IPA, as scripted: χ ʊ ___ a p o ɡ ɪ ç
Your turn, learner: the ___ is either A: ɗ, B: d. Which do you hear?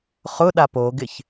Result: A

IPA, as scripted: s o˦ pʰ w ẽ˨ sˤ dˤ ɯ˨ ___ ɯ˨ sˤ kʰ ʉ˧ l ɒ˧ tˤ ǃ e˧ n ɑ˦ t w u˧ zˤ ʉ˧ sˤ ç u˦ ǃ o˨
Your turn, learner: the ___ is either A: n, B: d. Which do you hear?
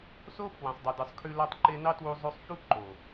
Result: B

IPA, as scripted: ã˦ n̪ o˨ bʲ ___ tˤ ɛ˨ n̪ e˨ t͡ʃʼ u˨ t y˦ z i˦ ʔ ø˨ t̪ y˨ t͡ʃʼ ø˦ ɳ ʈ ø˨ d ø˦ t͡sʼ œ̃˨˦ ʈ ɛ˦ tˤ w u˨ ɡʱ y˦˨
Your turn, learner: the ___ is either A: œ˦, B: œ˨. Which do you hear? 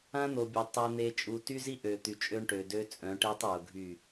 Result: B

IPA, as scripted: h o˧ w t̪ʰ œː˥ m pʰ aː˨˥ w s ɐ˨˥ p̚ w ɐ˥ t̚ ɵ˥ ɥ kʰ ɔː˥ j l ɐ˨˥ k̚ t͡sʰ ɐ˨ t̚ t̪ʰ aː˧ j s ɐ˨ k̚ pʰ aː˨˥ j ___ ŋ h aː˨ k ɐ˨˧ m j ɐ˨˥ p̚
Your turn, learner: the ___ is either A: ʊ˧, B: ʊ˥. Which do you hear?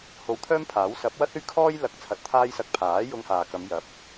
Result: A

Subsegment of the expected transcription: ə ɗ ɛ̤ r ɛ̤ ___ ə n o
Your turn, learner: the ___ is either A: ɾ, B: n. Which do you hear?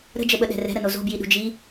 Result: A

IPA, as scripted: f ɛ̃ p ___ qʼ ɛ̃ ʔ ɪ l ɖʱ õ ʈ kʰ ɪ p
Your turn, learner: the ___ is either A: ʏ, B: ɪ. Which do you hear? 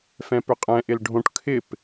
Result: A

